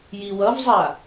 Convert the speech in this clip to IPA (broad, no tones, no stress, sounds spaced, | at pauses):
j i w ʌ v zˤ a